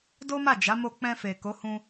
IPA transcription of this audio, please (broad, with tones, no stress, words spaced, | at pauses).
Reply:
do˦ma˦˨d͡ʒa˨˦ mo˧k͡pɛ̃˧fe˨ ko˨˦hũ˧